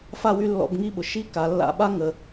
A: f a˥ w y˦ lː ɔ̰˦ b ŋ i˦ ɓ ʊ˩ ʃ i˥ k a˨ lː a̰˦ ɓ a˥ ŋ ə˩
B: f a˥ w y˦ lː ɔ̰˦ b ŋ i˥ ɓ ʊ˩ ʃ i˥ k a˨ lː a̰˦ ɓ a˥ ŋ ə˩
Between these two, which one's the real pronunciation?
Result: B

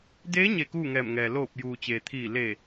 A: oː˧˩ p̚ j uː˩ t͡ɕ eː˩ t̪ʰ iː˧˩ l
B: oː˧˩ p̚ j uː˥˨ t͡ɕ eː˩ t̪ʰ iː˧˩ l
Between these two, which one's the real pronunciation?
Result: A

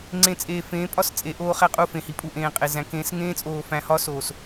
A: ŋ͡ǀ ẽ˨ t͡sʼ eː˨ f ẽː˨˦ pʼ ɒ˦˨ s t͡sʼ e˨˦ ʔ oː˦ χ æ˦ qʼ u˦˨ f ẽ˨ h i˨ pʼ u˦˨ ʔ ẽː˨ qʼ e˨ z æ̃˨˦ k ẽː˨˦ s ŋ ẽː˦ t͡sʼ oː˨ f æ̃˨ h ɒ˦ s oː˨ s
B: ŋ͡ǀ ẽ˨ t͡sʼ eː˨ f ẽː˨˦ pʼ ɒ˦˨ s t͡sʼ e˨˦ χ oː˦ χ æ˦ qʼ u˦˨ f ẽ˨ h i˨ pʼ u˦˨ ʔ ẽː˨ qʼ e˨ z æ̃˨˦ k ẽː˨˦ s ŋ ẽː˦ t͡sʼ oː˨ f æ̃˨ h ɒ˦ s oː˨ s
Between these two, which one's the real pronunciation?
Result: A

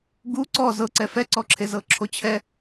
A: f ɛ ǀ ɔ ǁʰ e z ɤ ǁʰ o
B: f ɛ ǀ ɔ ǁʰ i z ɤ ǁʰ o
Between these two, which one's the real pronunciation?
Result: A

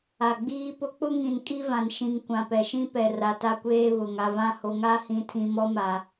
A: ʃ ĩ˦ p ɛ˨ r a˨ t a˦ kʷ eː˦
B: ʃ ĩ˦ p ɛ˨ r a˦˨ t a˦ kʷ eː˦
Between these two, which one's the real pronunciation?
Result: A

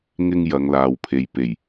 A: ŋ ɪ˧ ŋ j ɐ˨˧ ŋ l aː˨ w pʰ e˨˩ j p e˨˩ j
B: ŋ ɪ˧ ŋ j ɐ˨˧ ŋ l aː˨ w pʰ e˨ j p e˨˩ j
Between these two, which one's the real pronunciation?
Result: B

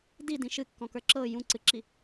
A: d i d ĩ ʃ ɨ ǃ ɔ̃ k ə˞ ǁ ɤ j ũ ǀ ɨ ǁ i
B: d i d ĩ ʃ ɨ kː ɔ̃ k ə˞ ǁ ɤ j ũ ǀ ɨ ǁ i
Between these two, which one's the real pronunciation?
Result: B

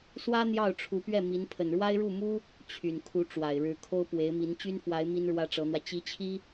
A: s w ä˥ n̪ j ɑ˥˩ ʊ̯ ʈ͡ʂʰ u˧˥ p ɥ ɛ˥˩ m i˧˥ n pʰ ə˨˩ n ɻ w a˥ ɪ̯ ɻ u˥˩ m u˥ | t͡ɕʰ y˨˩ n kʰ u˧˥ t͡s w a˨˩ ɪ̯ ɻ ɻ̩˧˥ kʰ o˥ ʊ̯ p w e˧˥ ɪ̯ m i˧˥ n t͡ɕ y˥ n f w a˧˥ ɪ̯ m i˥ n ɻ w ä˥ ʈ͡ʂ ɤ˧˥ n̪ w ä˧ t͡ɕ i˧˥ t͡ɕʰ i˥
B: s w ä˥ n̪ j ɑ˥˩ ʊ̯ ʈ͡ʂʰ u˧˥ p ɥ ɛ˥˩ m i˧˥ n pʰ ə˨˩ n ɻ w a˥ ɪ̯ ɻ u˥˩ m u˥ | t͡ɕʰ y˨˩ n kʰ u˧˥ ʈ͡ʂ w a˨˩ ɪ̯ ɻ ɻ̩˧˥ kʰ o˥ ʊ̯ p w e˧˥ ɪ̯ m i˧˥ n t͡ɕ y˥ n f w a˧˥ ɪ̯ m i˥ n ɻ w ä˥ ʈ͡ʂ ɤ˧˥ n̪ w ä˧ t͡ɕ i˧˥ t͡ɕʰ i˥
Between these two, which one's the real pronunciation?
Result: B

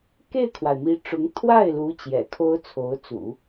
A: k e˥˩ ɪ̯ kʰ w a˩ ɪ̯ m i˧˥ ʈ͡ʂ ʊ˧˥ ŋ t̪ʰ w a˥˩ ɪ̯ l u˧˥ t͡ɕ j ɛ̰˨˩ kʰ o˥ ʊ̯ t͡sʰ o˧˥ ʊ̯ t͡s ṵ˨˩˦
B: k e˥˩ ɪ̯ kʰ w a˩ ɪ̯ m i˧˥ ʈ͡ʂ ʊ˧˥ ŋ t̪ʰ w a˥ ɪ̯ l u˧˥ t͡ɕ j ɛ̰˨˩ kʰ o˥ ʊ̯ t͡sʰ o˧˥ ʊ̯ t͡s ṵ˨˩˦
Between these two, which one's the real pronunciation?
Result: A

